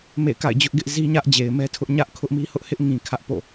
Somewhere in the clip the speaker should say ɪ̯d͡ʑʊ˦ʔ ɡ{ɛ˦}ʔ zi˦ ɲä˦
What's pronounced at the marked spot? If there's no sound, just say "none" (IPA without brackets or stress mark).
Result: ɪ˦